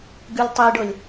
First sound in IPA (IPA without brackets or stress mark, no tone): ɡ